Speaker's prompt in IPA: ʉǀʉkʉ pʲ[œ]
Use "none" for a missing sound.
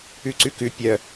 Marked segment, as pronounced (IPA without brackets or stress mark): œ